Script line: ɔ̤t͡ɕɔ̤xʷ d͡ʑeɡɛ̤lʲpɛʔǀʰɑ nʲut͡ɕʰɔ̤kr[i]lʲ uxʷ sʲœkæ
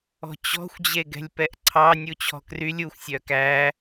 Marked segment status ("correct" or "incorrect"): incorrect